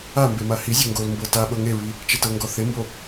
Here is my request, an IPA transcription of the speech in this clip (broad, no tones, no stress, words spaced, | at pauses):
ambe mahizʲo ŋɡolmbɤ taɓɤ ŋeɹi | t͡ʃetɤŋɡɔ θembo